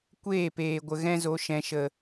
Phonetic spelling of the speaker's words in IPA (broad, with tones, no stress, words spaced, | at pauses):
kʷeː˦˨peː˨ ɡʷə˨ ɣɛ̃˦zo˧ ʃɛ̃˨ʃə˨